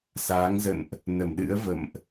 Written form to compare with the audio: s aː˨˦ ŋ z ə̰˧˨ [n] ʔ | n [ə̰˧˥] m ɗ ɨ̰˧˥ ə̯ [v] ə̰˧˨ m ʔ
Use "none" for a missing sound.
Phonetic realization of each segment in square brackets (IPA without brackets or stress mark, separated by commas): n, ə˧˩, v